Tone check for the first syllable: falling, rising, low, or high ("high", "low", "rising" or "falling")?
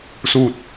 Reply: falling